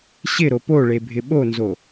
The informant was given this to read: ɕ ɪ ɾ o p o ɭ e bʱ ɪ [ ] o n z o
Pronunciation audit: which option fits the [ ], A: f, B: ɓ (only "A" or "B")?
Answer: B